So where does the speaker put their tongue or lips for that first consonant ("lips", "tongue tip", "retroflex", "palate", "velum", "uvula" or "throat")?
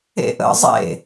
throat